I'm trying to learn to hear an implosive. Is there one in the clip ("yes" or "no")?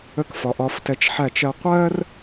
no